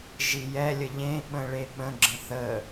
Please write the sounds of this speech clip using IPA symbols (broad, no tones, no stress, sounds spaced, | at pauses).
ʒ i j ɛ lʲ ə ʎ ẽ ɓ ə̃ ɭ e ɓ ə̃ ɡ͡ǁ ə̃ θ ə